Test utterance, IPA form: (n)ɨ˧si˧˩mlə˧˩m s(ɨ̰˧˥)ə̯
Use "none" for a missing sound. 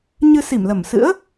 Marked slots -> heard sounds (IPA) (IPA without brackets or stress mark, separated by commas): ɲ, ɨ̰˧˥